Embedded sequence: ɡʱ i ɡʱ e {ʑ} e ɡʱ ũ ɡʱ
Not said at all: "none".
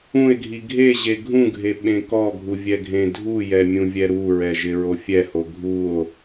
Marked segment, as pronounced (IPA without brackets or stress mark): ʑ